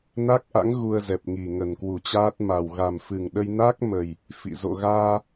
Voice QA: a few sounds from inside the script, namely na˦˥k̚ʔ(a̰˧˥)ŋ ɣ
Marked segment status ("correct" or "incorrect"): correct